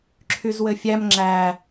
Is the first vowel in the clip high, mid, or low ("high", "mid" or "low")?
high